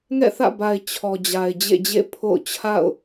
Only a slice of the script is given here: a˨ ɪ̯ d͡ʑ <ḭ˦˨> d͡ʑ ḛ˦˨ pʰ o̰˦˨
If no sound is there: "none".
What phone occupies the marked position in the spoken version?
ḛ˦˨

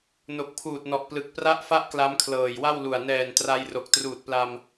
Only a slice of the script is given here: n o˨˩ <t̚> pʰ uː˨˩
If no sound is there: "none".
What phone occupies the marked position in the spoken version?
k̚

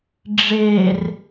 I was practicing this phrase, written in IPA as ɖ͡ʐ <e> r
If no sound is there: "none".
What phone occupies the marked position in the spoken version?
e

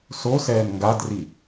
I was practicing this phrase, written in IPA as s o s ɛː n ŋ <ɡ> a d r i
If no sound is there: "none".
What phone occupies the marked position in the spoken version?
ɡ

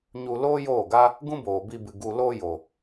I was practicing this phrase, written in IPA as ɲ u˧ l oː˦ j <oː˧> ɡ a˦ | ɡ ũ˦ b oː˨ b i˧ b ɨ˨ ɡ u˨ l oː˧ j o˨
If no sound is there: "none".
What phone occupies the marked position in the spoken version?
oː˦˨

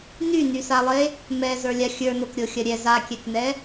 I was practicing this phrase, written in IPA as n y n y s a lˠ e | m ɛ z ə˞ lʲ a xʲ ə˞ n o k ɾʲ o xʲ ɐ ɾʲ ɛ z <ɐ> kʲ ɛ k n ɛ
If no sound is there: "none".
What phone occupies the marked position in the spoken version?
a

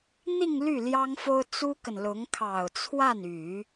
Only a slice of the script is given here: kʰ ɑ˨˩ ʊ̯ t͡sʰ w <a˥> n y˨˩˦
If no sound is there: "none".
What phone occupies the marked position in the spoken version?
a˥˩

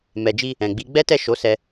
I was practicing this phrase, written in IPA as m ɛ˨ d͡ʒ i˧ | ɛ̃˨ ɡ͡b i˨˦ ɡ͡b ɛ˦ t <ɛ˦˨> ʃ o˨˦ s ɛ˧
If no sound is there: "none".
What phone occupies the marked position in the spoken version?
ɛ˦˨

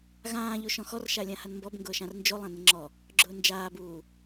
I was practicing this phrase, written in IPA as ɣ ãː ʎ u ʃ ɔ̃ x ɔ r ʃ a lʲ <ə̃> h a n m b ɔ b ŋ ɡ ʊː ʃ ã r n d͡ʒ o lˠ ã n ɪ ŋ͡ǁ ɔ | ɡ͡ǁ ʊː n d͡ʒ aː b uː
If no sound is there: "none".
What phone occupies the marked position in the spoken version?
ã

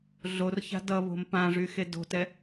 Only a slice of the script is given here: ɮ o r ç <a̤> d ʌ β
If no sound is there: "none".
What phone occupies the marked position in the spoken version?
a̤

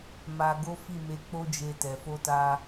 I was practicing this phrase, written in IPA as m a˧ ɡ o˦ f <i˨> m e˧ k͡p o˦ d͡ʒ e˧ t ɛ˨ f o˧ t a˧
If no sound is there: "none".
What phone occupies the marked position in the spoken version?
i˦˨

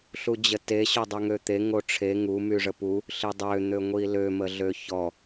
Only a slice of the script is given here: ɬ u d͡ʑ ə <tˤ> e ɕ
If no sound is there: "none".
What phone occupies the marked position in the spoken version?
t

